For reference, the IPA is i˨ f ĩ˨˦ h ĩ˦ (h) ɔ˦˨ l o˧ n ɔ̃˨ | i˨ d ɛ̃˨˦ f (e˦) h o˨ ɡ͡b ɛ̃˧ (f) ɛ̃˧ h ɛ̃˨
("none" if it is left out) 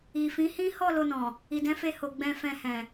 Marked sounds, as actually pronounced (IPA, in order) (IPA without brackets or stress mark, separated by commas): h, e˧, f